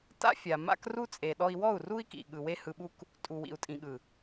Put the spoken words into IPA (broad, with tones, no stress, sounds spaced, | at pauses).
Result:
t a̰˦ fʲ a˨ m a̰˦ k r u˦ t͡sʼ e˨ ɗ ɔ˧ i̯ w ɔ˦˨ u̯ r u˦ i̯ k ḭ˨ ɠ ɯ˨ w e˦ h ɯ˧ ɓ u˦ k | tʼ u˨ w ḭ˨ u̯ tʼ ĩ˨ ɠ ɯ˨